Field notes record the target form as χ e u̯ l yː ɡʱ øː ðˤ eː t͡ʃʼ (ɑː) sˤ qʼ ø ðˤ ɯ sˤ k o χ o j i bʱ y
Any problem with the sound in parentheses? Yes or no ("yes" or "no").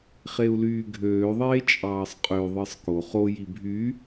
no